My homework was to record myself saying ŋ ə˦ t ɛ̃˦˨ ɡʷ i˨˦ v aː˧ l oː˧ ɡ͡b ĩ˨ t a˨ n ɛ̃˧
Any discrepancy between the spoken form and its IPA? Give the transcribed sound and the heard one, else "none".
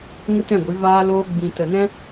a˨ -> ə˨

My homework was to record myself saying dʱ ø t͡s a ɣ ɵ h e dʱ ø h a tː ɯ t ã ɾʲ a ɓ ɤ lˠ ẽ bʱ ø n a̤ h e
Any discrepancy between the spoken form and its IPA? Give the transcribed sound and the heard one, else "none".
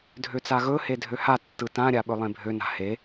ɤ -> ɵ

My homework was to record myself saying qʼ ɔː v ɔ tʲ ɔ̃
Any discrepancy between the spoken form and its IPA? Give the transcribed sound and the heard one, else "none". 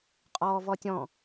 none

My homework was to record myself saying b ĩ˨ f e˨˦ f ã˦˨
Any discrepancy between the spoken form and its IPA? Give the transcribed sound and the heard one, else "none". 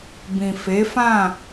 none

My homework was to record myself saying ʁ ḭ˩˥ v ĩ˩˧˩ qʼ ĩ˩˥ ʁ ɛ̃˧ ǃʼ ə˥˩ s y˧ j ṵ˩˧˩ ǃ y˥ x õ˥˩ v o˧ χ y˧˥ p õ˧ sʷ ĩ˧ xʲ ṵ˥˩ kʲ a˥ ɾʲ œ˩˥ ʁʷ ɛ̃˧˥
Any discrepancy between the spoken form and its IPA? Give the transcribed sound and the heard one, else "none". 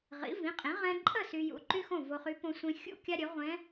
none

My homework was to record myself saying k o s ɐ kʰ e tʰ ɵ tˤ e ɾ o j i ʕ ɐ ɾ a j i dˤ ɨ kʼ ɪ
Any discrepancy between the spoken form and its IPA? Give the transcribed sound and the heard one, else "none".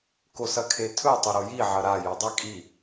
ɪ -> i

